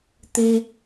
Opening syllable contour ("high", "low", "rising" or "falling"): high